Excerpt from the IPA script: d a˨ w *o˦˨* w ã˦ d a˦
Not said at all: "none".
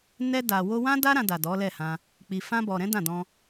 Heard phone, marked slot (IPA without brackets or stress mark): o˧